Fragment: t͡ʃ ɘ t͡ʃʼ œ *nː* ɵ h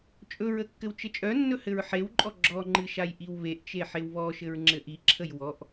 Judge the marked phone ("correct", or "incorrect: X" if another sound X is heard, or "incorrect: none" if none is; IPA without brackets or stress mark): correct